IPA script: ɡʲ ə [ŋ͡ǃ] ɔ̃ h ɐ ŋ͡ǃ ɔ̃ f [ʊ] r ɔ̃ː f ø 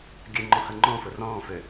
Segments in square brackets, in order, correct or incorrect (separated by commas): correct, correct